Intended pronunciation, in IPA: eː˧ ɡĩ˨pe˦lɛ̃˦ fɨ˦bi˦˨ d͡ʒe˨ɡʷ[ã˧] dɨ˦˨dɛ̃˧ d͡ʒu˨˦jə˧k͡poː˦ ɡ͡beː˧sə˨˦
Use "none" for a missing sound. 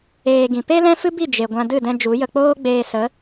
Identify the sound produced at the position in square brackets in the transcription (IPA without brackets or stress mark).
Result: ã˧